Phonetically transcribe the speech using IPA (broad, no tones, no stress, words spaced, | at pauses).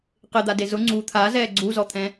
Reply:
qɪd̪ade zʊ ŋ͡ǀu t̪ʰazɛː ɡ͡ǀuzɔt̪ʰɛ̃